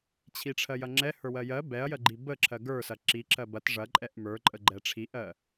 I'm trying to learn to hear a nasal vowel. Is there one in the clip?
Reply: no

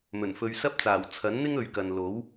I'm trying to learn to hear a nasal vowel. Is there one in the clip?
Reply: no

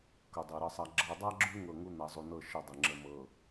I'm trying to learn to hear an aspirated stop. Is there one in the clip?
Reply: no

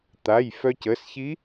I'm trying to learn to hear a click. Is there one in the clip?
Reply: no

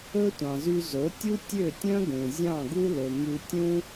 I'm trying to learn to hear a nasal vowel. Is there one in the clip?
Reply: yes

